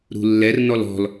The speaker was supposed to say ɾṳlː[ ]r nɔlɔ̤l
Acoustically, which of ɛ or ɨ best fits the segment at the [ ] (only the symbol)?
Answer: ɛ